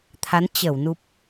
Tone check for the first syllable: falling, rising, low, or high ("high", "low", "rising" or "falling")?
rising